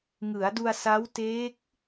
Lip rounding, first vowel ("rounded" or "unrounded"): unrounded